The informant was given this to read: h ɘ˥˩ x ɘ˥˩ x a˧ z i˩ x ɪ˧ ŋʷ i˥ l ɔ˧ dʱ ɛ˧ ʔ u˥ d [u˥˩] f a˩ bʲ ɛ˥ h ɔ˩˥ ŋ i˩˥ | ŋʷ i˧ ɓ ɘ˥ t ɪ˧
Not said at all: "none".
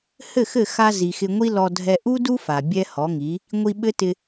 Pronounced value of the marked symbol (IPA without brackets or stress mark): u˥